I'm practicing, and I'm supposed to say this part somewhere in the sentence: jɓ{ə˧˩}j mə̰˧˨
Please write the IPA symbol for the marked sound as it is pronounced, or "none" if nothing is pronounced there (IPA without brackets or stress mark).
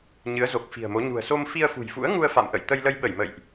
ə˧˩